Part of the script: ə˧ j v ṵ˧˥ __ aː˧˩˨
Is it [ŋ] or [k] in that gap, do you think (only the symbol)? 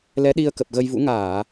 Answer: ŋ